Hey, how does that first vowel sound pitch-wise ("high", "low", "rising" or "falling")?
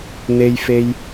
high